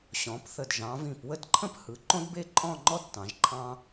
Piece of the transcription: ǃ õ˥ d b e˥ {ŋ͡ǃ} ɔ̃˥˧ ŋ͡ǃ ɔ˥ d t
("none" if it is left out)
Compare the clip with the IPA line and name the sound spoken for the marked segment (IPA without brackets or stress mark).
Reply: ǃʼ